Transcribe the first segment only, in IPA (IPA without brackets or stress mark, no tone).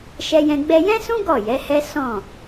ʃ